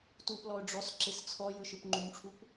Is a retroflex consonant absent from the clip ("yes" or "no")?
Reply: no